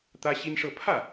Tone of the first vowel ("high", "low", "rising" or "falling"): high